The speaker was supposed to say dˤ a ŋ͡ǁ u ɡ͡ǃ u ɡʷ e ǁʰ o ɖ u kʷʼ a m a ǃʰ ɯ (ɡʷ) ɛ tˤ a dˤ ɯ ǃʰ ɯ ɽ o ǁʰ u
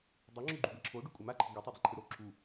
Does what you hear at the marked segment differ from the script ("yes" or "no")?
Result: no